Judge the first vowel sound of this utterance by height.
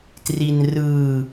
high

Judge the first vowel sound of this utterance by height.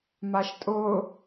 low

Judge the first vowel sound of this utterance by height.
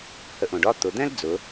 mid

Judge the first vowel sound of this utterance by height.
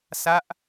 low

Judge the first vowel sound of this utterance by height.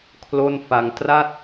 mid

